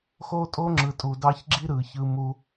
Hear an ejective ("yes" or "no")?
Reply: yes